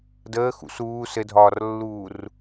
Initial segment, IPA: d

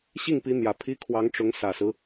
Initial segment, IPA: ɕ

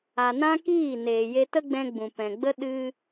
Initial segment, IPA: a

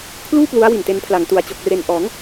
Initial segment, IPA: kʰ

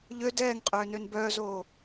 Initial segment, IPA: ʎ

